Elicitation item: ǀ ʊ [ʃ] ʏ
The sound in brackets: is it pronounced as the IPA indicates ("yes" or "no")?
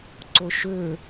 yes